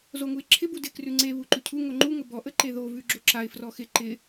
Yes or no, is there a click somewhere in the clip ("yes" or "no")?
yes